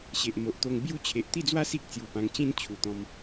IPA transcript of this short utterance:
ɕe˨ʔmo˨ʔt̪o˧ŋ bju˥˧ t͡ɕʰe˨ʔt̪i˥˧d͡zwa˦ si˦k̚t͡sju˨˩ pã˧ŋt͡ɕĩ˦nt͡ɕʰu˨˩t̪ɔ̃˧m

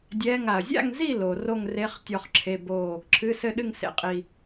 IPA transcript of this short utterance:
dʲɛː˧˥˧ŋa˩ɐ̯ zʲa̰˥˨ŋzi˥˨ lo˩ ro˥˨ŋre˧˥˧χ tʲɔ˥˨χǁʰe˧˥˧boː˥˨ | ǁʰɨ˧˥˧sɘ˥˨ɗɨ˥˨ŋ sḛ˩qʼi˩

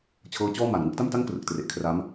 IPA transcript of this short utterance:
t͡ɕʰɤː˦˥t͡ɕɔː˥˩ma˨˩n ŋɯ˥˩k̚da˥˩m ta˥˩ŋkrɯ˨˩k̚ tre˨˩ʔkʰra˦˥m

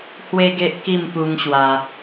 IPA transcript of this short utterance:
hwe˦ɡe˦ʔ ki˥˧mpu˧ŋ ɕwa˧

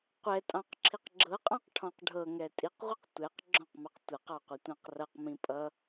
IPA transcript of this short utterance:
qʷɛtʼɑ̃q ǁʰiqɡ͡ǁɤqʼɑ̃q ʈʰɔ̃qɖʱɤŋɛ tʼiqʁʷiq tʷɛq ɡ͡ǁɔ̃qmɑq tʷʌqɑ qʷʌtʷãqrʌqmĩ pʼʌ

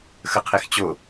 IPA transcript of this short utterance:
xəqʰext͡ɕo

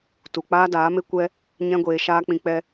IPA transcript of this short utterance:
tu˨ k͡paː˦daː˨˦me˦ kʷɛ˦ | ɲɛ̃˦ɡʷeː˧ʃaː˦k͡pĩ˧ k͡pɛ˦

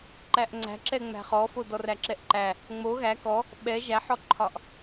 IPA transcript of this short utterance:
ǃæʔŋ͡ǀæ̤ǁɛ ŋ͡mæ̤χɔfo dɔræǁɛʔǃæ | ŋ͡mo ɣæ kɔ | ɓɛ ʒæħɔǃʰɒʔ

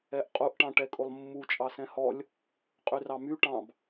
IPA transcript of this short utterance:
ɛʔqʼuʔ ʈɑ̃ʈɛkʼolˠmːu t͡ʃʼɑsɛ̃hɔlʲ | qʼyrɑmy ʈɑ̃b

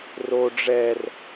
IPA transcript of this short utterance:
ro ɖ͡ʐɛr

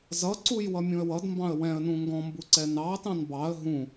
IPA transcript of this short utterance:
zʌǀuj wʌmʲũə̯wʌdmbɑ̃ə̯ wɛ̃ə̯nũ ŋɡɔ̃mbu ǀɛnɑtɑ̃n bɑə̯ ɦũ

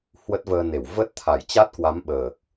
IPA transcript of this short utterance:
hwə˦˥t̚vəː˧ne˧˩w və˦˥t̚t̪ʰa˧˩jt͡ɕa˦˥t̚ kwa˨˦mɓəː˨˩k̚

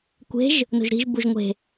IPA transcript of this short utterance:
kʷe̤ʒ | no̤ʒɾi̤ʒ buʒŋʷe̤

